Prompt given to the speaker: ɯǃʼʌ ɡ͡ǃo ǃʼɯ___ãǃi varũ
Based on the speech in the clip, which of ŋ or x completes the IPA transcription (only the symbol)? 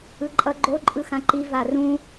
x